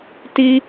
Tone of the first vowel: high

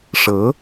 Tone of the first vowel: rising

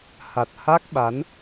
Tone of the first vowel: low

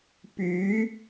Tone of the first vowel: rising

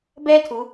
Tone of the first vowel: high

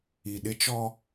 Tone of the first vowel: low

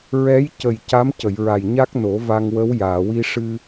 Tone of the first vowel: rising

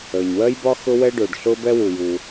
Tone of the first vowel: low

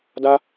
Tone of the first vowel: high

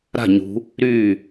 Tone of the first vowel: falling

